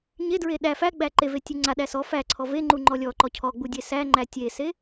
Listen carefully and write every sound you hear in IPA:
ɲ e d ɹ e ɗ æ f æ ɡ͡b æ ǃ e v e tʲ u ŋ͡ǀ a ɗ æ s ɔ f æ ǀʰ ɔ v e ŋ͡ǃ u ŋ͡ǃ ɔ lʲ ɔ ǃ ɔ cʰ ɔ ɡ͡b u dʲ e s æ ŋ͡ǃ æ tʲ e s e

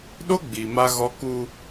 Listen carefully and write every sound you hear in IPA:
ɗ o˦ ɡ͡b iː˨ m a˦ ɣ ɔ˦ k u˦

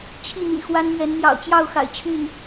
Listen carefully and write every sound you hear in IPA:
t͡ɕʰ i˥˨ n̪ ḭ˨˩ x w a˦ n m ɥ ɛ˨˦ n m j ɑ̰˨˩ ʊ̯ t͡ɕ j ɑ˥˨ ʊ̯ x a̰˨˩ ɪ̯ t͡ɕʰ y˥˨ n

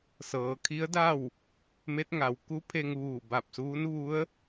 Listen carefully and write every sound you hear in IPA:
s ɤː˩˧ kʰ i˧˥ ə̯ d a˥˨ w | m e˧˥ t̚ ŋ a˩˧ w k u˧˥ pʰ e˧ ŋ ʋ uː˧˩ b a˧˩ p̚ s uː˧˥ n ʋ u˧˥ ə̯

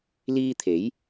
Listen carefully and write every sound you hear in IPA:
l iː˥ t̪ʰ e˨˥ j

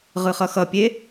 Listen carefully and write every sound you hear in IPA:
ʁ ɯ χ ʌ x ʌ pʲ e

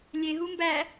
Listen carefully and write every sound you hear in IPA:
lʲ e ɦ u m b æ

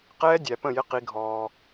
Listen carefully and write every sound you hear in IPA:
q ɛː˦ dʲ æ˨ p ə̃˦˨ j ɪ˦ q i˦ ɡʱ ɔː˦

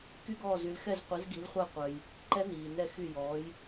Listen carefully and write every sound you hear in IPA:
k y˦˥ ɡ ɔː˦˨ z y˨˦ l x ɛ˦˨ z qʷ ɛ˨˦ z ɡ i˨˦ l χʷ a˦˨ qʷ œ˨ j | ǃ ɛ˦˥ n iː˨ n ɛ˦˨ x y˦˨ j ɔː˨˦ j

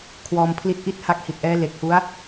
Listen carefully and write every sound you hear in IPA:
kʰ w ɔː˧ m pʰ l i˦˥ t̚ ʔ i˥˩ t̚ h a˦˥ k̚ h i˨˩ t̚ ʔ ɛː˦˥ l e˨˩ k̚ h u˦˥ a̯

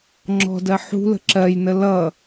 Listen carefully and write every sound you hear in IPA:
ŋ͡ǁ ɔ̤ d ɜ ħ ṳ l ə̤ ǁ ɜ j n ə l ʌ

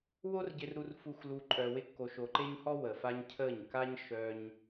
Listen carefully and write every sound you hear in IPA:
w o˦ r ɟ ɪ˧ r ɾ u˧ r f u˧ xʷ l u˧ ǃʼ œ˧ w ɪ˦ kː o˧ ʃ o˧ ǃ e˦ ɲ h ɔ˦ w ə˨ f a˧ ɲ cʰ ə˦˨ ɲ k a˦ ɲ ʃ œ˦ ɲ

